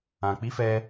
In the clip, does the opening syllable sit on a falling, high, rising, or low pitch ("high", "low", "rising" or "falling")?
low